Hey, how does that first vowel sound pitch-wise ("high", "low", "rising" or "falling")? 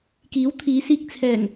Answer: rising